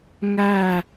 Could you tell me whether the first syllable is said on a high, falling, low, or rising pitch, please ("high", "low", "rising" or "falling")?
falling